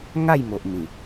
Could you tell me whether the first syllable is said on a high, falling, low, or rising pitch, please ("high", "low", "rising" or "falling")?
falling